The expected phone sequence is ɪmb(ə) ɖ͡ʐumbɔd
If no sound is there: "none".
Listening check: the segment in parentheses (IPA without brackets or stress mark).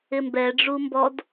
ɛ